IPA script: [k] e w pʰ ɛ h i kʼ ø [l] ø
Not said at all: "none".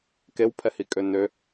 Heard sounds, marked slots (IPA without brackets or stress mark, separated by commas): k, n